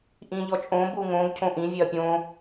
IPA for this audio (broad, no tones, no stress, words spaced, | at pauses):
ʔĩʎɔt͡ʃʼõ buŋõɡ cʰõʔĩ vʲeɐ̯pʲõ